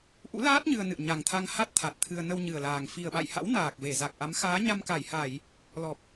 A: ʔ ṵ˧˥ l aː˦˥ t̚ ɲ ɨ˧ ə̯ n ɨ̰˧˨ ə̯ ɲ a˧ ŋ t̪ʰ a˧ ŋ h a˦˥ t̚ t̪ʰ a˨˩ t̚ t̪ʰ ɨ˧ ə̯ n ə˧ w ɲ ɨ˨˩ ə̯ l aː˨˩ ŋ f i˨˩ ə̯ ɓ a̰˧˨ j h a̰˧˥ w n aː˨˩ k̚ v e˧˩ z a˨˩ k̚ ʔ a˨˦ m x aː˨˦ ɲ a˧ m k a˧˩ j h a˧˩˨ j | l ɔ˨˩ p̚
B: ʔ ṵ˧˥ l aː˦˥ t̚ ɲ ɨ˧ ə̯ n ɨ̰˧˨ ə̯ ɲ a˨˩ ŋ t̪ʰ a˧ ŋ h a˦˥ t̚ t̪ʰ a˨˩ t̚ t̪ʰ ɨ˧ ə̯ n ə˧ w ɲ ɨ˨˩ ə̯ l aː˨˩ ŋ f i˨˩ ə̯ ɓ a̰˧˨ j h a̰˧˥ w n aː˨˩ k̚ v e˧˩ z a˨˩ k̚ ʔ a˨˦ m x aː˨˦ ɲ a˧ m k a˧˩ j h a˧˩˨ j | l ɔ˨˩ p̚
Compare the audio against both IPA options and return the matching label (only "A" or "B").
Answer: B